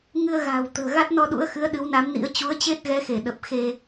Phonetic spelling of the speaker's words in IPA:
ŋ ɨ˧ ə̯ ɣ a̤ː˨˩ w t̪ ə̤ː˨˩ ɣ a˦˥ t̚ n ɔ˧ ɗ ṵ˧˥ ə̯ x ɨ˨˦ ə̯ ɗ ɨ˨˦ w n a˨˦ m n ḭ˧˥ ə̯ t͡ɕ u˨˦ ə̯ t͡ɕ e˦˥ t̚ ɣ ɛ˨˦ x e˧˩ ɗ ə˨˩ p̚ x e˧

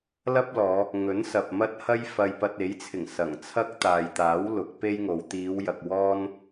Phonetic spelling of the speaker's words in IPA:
l ɐ˥ p̚ l ɔː˨˧ | ŋ ɵ˨˥ n s ɐ˨ p̚ m ɐ˥ t̚ h ɐ˥ j f ɐ˧ j p ɐ˧ t̚ e˨˥ j t͡sʰ ɪ˨˩ ŋ s ɐ˨˩ ŋ t͡sʰ ɐ˥ k̚ t̪ aː˨ j t̪ aː˨˥ w l ʊ˨˥ k̚ p e˥ j ŋ o˨˧ w t̪ iː˨˧ w j ɐ˨ k̚ w ɔː˥ n

